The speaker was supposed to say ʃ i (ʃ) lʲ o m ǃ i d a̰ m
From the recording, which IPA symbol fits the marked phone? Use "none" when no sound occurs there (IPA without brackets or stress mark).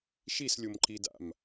s